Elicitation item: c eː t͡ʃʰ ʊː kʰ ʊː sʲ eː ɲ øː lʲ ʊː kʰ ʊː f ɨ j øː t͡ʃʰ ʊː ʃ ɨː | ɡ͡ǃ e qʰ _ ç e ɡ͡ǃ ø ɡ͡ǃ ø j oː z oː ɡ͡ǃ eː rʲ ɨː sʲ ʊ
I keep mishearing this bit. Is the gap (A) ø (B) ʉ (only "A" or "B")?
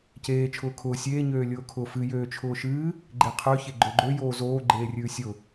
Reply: A